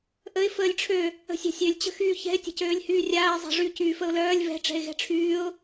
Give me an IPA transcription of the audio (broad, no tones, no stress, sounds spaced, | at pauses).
ʔ ə ɪ̯ f əː lʲ ʈ͡ʂʰ ø | ə̤ sʲ a̤ sʲ ø lʲ t͡ɕ ə̤ x yː ç ɛ̤ ɪ̯ tʲ ə̤ c øː lʲ h yː rʲ aː ɪ̯ zˤ a̤ ʐ y c yː f ə ʊ̯ l œː lʲ β ɛ̤ ʈ͡ʂ ɛ̤ ɪ̯ ɣ ɛ̤ ʈ͡ʂʰ yː ʊ̯